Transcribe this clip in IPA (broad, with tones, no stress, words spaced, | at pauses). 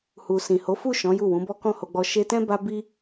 hu˨sĩ˨ ho˨˦fu˦˨ ʃɔ̃˨˦ ju˦˨wũ˨˦ bɔ˦kɔ̃˦˨ho˧ɡ͡bɔ˧ ʃe˧tɛ̃˦ ba˦bi˦